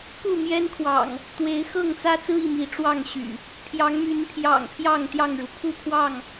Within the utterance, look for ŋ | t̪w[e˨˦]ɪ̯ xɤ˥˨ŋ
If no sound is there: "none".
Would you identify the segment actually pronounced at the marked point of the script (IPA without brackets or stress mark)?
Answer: e˨˦